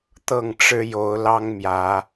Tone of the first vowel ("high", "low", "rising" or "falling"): falling